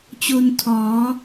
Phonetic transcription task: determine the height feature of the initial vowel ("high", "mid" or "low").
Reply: mid